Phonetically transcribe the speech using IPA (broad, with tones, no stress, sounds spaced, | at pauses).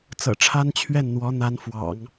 t͡s ɤ̰˨˩ ʈ͡ʂʰ a˥ n t͡ɕʰ ɥ ɛ˥˩ n n̪ w ɔ˧˥ n̪ a˧˥ n f w ɑ̰˨˩˦ ŋ